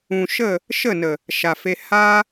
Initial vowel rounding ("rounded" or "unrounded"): rounded